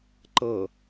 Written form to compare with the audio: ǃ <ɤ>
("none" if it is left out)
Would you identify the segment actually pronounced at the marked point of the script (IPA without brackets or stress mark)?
ɤ